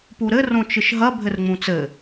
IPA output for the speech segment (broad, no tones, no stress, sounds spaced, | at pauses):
p u ɾ ɘ r õ t͡ʃ ɨ ʃ ɦ ɐ bʱ ɘ r ŋ͡m ũ t͡s ɘ